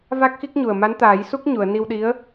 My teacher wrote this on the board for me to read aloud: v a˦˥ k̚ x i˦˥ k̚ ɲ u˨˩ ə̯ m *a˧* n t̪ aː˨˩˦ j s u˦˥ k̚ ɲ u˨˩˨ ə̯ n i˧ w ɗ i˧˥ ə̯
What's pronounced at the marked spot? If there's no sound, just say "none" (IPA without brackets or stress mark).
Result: a˧˥